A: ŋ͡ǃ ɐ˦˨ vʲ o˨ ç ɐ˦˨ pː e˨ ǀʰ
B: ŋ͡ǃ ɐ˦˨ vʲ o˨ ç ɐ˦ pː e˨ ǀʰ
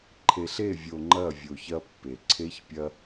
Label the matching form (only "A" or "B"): B